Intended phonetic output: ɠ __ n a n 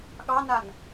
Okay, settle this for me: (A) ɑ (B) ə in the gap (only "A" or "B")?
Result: A